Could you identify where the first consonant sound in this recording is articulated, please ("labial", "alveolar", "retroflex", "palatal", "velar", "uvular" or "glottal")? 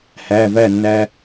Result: glottal